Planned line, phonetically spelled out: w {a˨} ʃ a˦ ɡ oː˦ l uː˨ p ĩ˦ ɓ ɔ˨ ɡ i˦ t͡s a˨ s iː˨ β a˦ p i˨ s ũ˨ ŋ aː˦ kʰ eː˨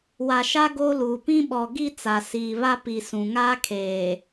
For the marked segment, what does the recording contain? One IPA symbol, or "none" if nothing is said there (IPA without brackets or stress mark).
a˨